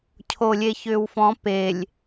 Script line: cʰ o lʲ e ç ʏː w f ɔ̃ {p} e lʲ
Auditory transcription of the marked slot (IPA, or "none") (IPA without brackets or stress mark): p